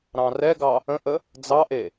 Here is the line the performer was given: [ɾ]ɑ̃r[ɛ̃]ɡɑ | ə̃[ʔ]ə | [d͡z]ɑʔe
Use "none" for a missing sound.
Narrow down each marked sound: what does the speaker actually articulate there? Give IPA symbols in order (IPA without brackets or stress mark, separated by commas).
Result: ɾ, ɛ, ʔ, d͡z